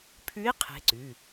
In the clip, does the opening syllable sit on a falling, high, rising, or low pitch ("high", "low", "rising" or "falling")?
rising